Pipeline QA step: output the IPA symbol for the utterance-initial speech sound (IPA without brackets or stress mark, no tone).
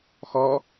x